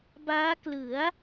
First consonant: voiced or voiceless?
voiced